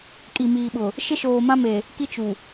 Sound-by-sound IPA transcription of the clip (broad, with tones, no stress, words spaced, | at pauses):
kʼi˨miː˨ɓʊ˨ | ʃɪ˦ʃoː˨mã˦me˨ | ki˦t͡ʃu˨